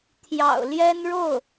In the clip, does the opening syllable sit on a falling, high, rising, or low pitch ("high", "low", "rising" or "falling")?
low